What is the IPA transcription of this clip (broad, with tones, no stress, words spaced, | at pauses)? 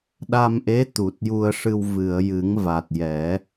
ɗa˧mʔe˧˥ t̪u˨˩t̚ju˧ə̯ʂɨ˧w vɨ˨˩˨ə̯jɨ˨˩˦ŋ va˨˩t̚jɛ˨˩˦